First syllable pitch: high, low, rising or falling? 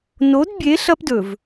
rising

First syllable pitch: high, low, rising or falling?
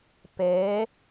rising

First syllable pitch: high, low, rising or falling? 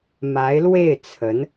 rising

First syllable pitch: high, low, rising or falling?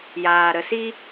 low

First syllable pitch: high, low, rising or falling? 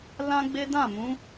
high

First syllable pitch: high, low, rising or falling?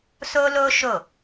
high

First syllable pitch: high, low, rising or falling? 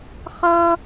high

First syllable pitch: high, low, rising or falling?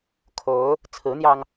rising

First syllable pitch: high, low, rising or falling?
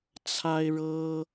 high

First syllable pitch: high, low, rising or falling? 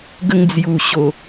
high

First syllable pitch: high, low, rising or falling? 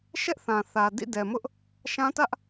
high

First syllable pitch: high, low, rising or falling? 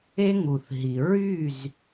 high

